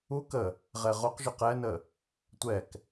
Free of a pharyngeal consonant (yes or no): yes